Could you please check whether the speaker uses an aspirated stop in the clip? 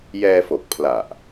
yes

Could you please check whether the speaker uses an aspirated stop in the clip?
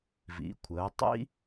yes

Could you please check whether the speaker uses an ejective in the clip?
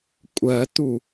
yes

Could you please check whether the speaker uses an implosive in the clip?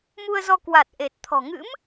no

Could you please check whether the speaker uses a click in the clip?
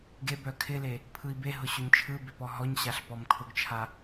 no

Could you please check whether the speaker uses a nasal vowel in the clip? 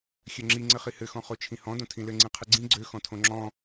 yes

